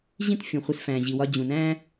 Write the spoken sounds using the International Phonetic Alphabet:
ʑ ĩ˥ t fʲ ũ˩ χʷ e˧ s f æ̃˩ ʑ i˩ w ɒ˧ d͡ʑ ũ˩ n æ̃˥

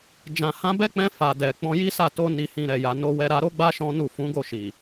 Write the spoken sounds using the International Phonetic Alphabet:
d͡ʒ ã˨ h ã˧ b ɛ˦ k͡p ɛ̃˧ f a˨ d ɛ˨ k͡p ɔ̃˧ j i˦ s a˦˨ t o˧ n i˨ h ĩ˨ ɾ ɛ˨ j a˨ n o˧ w ɛ˧ ɾ a˧ ɾ o˦ ɡ͡b a˦ ʃ ɔ̃˦ n u˦˨ f ũ˨˦ ɡ o˦˨ ʃ i˨

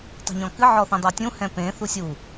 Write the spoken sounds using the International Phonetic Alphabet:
tˤ e̤ ɲ ɔ̃ k ɨ ʕ ɔ θ ĩ dˤ a tʲ ũ h ɛ̃ p ẽ θ u sʲ u

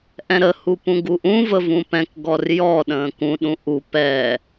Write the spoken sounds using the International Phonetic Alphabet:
ʔ ɛ̃ ɾ ə h u p ũ ɡ u ʔ ũ v ə v ũ p ɛ̃ k ɡ ɔ r j ɔ ɗ ə̃ː k ũ ɗ ũ ʔ u p ɛ

